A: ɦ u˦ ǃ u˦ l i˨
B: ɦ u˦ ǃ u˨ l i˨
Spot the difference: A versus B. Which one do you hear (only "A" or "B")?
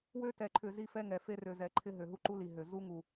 A